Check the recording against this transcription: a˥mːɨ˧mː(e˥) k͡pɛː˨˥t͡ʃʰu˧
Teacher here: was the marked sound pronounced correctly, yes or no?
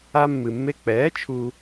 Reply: yes